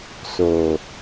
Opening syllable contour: low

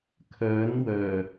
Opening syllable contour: rising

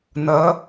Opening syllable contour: rising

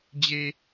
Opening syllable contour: low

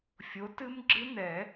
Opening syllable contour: rising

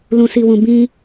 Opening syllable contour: low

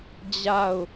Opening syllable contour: falling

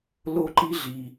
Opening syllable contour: falling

